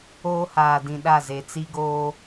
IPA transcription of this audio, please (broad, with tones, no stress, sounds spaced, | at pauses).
oː˦ h aː˨ d ĩ˨ ɗ a˦˨ z e˨ t͡s i˦ ɡ oː˦